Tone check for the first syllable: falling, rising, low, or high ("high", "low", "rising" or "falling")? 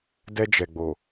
high